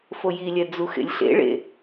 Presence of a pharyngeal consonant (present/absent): absent